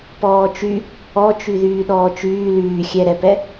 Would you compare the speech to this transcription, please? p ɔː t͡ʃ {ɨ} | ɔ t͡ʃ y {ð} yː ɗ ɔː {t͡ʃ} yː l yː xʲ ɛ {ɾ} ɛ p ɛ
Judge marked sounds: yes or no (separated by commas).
no, yes, yes, yes